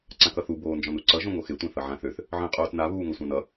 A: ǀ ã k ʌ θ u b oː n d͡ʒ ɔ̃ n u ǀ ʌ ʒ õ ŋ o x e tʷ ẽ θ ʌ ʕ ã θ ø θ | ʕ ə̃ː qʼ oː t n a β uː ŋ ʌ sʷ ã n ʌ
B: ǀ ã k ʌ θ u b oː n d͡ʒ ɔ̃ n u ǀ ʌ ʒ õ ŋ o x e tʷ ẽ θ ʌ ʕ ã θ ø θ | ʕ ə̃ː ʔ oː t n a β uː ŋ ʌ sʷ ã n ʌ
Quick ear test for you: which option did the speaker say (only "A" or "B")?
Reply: A